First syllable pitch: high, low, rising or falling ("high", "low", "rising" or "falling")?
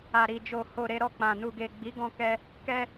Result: low